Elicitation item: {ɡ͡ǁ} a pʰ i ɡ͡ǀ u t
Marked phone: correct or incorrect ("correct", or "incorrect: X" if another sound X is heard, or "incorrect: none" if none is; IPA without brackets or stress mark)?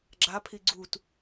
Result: correct